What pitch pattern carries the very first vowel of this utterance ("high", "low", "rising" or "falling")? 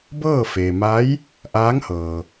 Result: falling